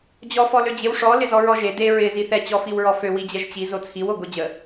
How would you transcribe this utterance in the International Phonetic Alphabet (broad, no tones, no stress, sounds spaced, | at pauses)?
d͡ʑ ɔ f ɔ l ø d͡ʑ ɪ w ʂ ɔ l ɪ z ɔ ɹ ɔ ʒ e d e ɹ ɪ z i θ ɛ t͡ɕ ɔ f i w ɹ ɔ f ø w i d͡ʑ ɛ ʒ t͡ɕ i z o t͡sʰ i w o ɡ o d͡ʑ ə